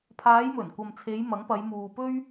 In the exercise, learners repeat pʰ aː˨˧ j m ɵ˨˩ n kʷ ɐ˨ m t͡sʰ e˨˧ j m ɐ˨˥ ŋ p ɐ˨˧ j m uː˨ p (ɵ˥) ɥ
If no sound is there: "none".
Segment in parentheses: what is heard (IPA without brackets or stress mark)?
ɵ˥